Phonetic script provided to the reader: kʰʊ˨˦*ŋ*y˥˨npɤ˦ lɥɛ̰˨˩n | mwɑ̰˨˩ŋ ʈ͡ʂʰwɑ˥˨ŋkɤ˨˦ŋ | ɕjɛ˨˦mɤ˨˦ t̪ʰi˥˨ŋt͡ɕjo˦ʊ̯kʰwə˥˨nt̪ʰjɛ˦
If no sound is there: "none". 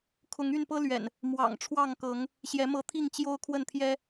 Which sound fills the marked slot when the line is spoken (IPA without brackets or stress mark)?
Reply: ŋ